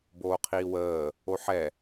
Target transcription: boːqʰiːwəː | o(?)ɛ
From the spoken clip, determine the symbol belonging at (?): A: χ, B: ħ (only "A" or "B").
B